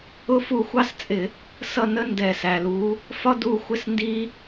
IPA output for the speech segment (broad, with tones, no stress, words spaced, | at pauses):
ʊ˥ fu˥˩xʷɑ˥st͡sʼɪ˧˩˧ | sʌ˥˩nə˥ ndɛ˧˩˧sæ˩lu˩˥ | fɒ˥du˥˩xʷɪ˥˩s ndi˥